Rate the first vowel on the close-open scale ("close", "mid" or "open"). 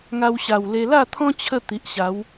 open